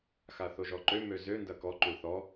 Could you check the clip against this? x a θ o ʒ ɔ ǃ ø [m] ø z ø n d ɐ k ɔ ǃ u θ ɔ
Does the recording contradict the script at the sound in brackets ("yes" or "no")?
no